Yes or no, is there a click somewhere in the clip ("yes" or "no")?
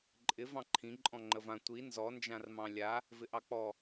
yes